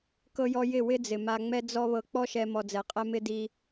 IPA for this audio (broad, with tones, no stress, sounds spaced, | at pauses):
k ɤ˦ j ɔ˦ j ɪ˦˨ w ɪ˦ d͡z ɪ˨ m a˧ ŋ͡m ɛ˦ d͡z ɔ˦ β ɤ˧ k͡p ɔ˦ ʃ ɛ˧ m ɔ˧ d͡z ɛ˨˦ qʼ ɛ˦ m ɪ˦ d i˦